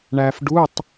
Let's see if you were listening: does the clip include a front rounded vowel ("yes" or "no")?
no